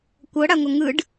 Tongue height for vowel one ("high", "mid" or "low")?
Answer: mid